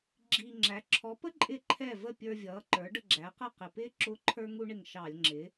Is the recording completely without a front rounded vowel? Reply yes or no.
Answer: yes